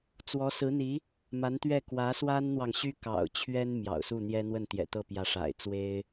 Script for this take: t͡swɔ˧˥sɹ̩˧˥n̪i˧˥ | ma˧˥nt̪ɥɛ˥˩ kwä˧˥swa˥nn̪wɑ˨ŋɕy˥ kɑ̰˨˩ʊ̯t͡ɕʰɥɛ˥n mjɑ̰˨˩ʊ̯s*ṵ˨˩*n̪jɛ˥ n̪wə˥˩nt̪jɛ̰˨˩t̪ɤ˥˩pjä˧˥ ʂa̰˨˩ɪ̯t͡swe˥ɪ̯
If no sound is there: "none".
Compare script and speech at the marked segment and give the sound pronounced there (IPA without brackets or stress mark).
u˥˩